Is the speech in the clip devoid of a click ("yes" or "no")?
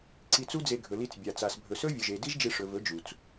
no